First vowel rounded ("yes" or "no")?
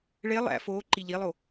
no